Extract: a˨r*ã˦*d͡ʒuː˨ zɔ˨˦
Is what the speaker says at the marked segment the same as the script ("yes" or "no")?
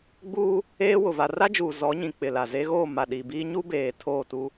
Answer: no